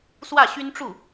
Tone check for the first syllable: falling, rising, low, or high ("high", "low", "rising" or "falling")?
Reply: falling